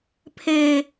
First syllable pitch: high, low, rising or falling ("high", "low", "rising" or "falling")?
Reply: high